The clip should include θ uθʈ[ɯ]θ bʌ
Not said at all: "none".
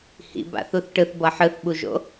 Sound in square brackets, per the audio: ɯ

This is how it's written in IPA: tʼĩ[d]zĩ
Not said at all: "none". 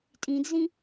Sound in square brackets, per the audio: d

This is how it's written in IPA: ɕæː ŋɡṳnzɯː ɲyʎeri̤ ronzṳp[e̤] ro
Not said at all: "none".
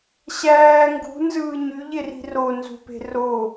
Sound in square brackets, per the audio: e̤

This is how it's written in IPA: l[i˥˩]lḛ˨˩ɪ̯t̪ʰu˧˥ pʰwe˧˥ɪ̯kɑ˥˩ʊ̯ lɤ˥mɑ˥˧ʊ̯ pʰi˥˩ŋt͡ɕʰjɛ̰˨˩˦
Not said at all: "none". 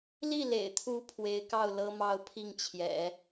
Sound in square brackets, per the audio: i˥˩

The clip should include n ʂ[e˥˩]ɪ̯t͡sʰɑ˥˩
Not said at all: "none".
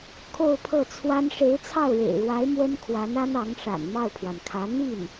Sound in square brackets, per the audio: e˧˥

